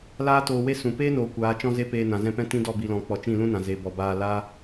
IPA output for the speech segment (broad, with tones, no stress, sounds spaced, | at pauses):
l aː˦ t oː˧ w e˦ s ũ˨ p eː˦ n oː˨ kʷ aː˨˦ t͡ʃ ɔ̃˦ z e˦ p eː˧ n ã˨ z ɛ̃˧ p ɛ̃˦ t ĩ˦ d ɔ˦˨ b i˨ l ɔ̃˨ k͡p ɔ˨ t͡ʃ ĩ˦˨ l ũ˦ n ã˨ z e˨ b ɔ˨ b aː˧ l a˦